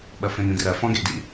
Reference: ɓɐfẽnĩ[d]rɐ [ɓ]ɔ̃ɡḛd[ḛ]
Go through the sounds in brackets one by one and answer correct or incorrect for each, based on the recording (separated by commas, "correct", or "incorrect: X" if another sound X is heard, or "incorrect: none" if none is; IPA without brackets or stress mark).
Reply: correct, incorrect: f, incorrect: ḭ